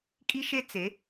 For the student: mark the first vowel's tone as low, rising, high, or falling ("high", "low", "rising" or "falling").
high